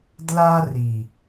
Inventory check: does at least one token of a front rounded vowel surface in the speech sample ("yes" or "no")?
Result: no